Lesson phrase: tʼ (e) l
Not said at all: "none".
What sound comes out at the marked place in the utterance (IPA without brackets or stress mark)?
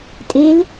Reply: e